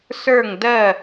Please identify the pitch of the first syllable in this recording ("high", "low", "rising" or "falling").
falling